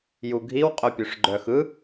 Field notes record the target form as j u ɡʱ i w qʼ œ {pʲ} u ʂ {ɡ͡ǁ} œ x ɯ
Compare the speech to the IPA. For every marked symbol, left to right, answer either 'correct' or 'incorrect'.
correct, incorrect

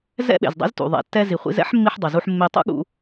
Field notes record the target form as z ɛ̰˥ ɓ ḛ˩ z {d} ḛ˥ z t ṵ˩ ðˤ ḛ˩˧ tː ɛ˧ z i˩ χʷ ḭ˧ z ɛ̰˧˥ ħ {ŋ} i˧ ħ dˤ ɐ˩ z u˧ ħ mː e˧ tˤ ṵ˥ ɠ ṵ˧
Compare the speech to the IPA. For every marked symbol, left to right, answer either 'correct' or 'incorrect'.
incorrect, incorrect

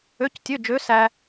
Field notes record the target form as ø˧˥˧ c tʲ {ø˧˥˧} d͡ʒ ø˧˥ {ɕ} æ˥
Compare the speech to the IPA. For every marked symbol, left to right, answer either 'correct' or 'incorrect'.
correct, incorrect

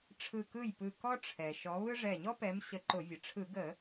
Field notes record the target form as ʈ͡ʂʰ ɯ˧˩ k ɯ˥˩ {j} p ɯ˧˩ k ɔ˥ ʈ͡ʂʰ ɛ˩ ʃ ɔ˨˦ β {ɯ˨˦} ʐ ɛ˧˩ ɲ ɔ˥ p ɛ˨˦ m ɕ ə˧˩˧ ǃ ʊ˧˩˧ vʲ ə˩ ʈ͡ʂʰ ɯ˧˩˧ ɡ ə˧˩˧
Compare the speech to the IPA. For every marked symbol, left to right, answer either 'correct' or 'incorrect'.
correct, incorrect

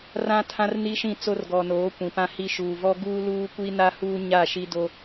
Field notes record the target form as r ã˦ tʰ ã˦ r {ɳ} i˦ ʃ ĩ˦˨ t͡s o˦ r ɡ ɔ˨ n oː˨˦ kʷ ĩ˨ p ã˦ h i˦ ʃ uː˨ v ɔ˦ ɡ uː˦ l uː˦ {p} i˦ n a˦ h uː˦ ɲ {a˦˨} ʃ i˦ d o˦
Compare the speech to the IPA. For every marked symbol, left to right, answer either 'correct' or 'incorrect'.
incorrect, incorrect, correct

